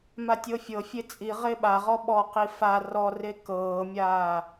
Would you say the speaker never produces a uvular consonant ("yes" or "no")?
no